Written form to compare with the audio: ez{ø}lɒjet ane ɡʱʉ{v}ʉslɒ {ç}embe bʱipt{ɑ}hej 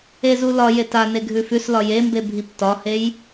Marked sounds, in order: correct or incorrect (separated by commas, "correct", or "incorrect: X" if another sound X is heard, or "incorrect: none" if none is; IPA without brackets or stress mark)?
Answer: incorrect: u, incorrect: f, incorrect: j, incorrect: ɒ